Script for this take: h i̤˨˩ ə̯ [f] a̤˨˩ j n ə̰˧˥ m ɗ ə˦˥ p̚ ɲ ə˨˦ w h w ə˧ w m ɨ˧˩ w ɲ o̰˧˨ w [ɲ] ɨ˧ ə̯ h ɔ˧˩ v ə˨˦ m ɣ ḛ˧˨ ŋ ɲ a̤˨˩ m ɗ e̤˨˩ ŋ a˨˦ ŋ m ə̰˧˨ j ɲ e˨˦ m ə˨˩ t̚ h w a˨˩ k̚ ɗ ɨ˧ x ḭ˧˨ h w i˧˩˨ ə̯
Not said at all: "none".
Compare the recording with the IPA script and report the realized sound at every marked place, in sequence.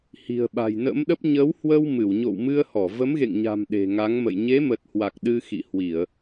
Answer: ɓ, m

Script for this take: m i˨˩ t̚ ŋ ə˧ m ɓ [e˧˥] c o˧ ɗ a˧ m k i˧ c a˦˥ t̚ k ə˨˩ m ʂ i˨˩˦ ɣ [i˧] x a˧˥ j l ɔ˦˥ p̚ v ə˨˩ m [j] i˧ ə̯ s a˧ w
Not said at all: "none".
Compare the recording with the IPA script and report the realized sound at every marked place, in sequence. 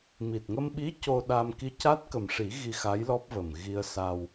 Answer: i˧˥, i˧, ɣ

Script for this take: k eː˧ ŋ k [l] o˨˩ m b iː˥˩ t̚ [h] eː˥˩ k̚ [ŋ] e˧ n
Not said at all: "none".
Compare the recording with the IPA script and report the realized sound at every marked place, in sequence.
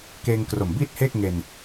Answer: r, h, ŋ

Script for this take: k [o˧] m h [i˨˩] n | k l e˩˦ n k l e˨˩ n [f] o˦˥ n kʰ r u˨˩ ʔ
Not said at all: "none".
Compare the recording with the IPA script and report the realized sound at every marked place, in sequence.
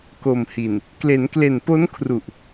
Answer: o˨˩, i˨˩, p

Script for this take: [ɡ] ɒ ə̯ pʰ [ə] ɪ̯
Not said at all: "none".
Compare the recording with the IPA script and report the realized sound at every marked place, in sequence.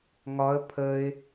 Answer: ŋ, ə

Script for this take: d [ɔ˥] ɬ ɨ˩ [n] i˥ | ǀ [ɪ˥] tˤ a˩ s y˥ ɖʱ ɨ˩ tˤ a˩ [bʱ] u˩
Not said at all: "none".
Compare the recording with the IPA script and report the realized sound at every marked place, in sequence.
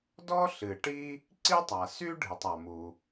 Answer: ɔ˥, ʈ, i˥, m

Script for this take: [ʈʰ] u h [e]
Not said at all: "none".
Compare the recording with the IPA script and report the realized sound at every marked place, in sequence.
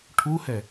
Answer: ʈʰ, ɛ

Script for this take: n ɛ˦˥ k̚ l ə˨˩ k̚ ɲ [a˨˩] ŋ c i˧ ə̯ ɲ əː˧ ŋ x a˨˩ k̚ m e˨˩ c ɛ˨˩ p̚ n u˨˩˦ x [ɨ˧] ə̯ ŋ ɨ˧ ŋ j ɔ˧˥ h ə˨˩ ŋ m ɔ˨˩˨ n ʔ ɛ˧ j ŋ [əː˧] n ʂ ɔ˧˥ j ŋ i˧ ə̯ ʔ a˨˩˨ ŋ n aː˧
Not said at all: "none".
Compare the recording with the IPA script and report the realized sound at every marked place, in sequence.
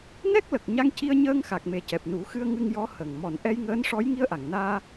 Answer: a˧, ɨ˧, əː˧˥

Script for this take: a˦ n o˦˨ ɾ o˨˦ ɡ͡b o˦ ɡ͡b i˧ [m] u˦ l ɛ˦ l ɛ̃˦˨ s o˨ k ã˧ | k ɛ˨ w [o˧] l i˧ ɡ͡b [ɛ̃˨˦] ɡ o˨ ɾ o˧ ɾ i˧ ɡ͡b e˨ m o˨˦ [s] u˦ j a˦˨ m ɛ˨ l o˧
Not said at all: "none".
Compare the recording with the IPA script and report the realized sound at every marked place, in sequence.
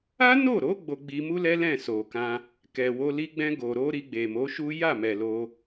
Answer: m, o˧, ɛ̃˧, ʃ

